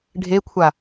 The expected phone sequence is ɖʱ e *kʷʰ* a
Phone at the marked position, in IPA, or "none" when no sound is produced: kʷʰ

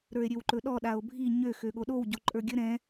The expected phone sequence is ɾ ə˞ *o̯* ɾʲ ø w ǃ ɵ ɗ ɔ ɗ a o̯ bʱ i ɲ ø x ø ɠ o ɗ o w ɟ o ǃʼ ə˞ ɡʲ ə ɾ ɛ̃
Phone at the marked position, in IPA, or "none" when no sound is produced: e̯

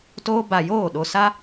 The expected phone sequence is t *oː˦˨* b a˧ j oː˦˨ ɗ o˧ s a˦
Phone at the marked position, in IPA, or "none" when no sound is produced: oː˦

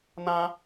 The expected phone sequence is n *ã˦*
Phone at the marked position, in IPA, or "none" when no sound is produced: ã˦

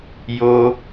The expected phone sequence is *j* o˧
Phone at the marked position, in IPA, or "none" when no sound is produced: j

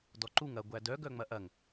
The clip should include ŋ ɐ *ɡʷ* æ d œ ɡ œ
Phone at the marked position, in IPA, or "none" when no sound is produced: ɡʷ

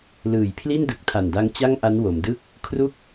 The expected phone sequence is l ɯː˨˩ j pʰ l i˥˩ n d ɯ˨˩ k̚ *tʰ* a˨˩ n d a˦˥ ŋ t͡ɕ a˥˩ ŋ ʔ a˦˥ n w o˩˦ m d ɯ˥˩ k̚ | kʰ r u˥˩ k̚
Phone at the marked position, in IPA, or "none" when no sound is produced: tʰ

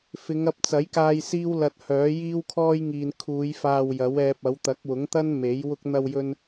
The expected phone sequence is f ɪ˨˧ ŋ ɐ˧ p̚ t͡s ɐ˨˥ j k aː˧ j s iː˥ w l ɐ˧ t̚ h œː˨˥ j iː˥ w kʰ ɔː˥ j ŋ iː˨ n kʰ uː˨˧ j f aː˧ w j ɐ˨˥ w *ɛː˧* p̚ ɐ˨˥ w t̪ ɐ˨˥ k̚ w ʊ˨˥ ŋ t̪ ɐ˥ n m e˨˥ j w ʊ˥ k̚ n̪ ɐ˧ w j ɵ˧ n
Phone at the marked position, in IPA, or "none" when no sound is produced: ɛː˧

